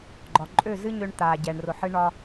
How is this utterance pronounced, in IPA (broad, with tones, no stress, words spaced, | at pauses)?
ɡ͡ǃɒ˨ǃʼø˦˨ zɨ˦ɲø˧ɳ t̪a˨ɟɛ˨ɳ rʊ˨ħɨ˧ɳɒ˧